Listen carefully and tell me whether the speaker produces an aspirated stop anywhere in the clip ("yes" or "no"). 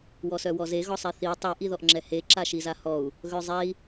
no